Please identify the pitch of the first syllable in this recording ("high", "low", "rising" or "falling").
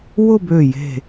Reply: falling